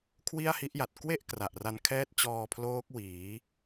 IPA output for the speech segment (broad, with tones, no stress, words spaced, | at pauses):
kʰwi˥˩a̯hi˦˥ʔja˨˩t̚ kwe˥˩ʔ kra˨˩ʔra˧nkʰɛː˥˩t̚ t͡ɕɔː˧pʰloː˦˥k̚wiː˩˦